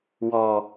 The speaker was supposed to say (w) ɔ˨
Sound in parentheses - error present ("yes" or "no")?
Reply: no